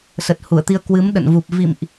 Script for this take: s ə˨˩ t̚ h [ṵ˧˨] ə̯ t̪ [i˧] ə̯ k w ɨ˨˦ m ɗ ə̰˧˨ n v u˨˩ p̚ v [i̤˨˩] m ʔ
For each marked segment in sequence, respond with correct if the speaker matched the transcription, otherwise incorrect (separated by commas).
incorrect, correct, incorrect